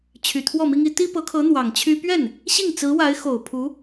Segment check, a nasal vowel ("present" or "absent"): absent